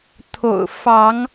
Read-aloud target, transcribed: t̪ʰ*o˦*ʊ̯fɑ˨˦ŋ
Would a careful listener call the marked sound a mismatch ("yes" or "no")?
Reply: yes